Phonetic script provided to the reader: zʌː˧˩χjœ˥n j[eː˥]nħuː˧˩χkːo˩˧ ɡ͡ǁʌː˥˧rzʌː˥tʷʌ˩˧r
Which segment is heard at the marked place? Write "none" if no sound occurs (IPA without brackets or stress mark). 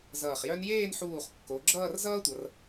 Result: eː˥˧